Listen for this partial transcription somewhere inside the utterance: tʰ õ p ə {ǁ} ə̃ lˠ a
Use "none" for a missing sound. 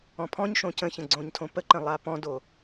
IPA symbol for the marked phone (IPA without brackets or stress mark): ǃ